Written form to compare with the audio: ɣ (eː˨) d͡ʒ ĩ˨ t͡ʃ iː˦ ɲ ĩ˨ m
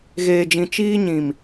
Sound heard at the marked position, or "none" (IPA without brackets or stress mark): eː˨